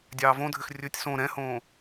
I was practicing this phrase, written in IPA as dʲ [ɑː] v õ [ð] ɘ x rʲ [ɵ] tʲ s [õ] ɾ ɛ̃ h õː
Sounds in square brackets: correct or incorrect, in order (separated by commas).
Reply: correct, incorrect, correct, correct